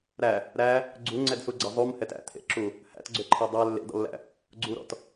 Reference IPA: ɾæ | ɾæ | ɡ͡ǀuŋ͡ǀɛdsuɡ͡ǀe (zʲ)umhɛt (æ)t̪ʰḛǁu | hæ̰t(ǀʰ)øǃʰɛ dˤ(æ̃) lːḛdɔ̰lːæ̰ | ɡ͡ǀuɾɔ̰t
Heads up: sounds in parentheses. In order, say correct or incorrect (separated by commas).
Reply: incorrect, incorrect, incorrect, incorrect